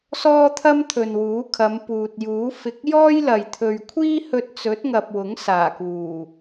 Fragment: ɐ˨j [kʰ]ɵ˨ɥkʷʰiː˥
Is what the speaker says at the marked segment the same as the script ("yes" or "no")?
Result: no